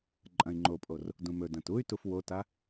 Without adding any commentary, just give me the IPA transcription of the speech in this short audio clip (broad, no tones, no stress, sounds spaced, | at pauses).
ǃʼ ɐ̃ i̯ ŋ͡ǃ o pʼ o r | d ũ m ɵ d ɐ̃ t u y̯ t u f w o t a